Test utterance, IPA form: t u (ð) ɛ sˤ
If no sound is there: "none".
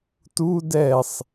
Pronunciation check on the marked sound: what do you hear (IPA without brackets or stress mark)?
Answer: d